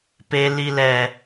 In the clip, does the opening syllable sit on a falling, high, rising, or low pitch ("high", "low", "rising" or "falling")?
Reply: low